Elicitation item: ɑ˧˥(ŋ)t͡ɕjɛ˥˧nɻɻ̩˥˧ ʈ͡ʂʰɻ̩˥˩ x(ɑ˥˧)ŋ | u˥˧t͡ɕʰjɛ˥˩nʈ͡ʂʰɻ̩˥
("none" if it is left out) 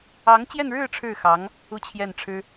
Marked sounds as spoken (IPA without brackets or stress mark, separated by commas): ŋ, ɑ˧˥